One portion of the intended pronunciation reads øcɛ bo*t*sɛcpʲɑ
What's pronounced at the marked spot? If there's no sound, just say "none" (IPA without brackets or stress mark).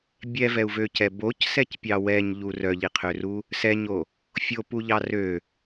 c